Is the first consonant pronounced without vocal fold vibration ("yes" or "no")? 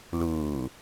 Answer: no